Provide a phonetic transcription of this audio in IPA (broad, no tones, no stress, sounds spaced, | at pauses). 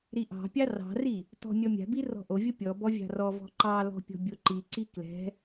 ɾ i ʔ ɑ̤ pʲ ɑ r ɑ̤ r i | t ɔ̤ nʲ ɔ mʲ a̤ b i r ɔ̤ ʔ o vʲ o pʲ ɔ b ɔ vʲ ɑ̤ r ɔ v ɔ̤ ǃ ɑ l ɔ̤ pʲ ɔ̤ bʲ o ǃ i ǀ i k l ɛ̤